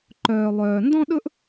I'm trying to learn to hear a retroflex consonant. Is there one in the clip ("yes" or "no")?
no